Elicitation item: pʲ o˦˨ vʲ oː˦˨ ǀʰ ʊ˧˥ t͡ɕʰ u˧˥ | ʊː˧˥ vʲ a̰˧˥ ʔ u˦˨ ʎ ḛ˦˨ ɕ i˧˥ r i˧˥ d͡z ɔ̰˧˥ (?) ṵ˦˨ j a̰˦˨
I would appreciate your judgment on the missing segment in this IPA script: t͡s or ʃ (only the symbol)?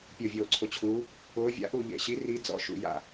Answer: ʃ